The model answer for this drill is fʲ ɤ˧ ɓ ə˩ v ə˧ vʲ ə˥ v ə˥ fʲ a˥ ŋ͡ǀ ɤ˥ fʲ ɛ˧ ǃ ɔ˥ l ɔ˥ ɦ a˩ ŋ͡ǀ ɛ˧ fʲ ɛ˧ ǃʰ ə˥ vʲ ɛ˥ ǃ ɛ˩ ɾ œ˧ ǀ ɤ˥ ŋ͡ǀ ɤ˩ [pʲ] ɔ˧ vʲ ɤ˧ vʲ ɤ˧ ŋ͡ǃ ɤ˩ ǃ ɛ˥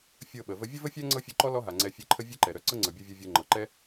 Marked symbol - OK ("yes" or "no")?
no